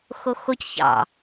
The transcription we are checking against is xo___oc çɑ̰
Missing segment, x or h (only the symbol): x